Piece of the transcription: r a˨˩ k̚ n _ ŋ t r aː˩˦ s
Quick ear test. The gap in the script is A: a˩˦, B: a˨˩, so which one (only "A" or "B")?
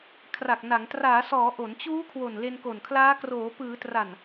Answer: A